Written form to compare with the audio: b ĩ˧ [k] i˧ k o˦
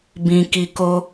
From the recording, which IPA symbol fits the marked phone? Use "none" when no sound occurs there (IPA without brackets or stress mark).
k